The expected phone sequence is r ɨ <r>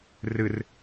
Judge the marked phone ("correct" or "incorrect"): correct